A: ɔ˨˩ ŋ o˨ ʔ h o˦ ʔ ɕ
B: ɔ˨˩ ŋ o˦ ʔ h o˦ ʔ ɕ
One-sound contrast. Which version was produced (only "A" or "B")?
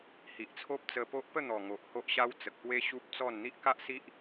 A